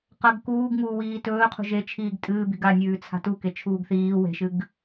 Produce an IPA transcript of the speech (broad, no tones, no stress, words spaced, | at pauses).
qɐɡ kuːɡŋuːwiː tɵːqʰṳ ʒet͡ʃʰiːɡ tʼɨːbi̤ɡ anʲʉːt͡sʰa̤ tuket͡ʃʰuːɡ θiː we̤ʃɨɡ